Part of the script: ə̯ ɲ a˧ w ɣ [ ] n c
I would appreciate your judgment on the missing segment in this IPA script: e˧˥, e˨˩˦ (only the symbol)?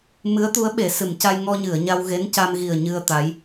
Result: e˧˥